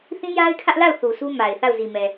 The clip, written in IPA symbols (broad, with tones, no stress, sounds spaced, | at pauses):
θ ĩ˦ j a˦ ɪ̯ kʰ ä˦ ʔ l a˦˨ ʊ̯ θ u˨ s u˦ m a˨ ɪ̯ θ a˦˨ ʊ̯ z i˨ m ɛ˨